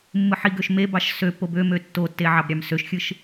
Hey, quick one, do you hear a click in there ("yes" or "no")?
no